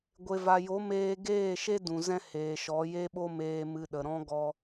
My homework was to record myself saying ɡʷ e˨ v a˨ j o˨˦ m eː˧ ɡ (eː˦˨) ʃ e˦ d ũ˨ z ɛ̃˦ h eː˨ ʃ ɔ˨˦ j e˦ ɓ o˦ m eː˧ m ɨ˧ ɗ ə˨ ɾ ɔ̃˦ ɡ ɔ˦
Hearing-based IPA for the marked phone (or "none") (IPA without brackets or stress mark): eː˦˨